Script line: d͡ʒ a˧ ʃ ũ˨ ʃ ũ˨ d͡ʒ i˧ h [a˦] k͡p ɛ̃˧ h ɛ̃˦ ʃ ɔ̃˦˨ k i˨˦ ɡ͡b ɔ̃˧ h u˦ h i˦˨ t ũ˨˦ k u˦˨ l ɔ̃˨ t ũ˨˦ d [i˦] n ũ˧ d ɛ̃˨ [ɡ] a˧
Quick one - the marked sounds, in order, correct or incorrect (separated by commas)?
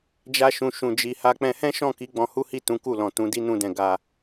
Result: correct, correct, correct